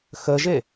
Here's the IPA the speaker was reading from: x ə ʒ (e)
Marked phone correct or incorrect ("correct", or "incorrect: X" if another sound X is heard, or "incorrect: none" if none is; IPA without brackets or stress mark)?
correct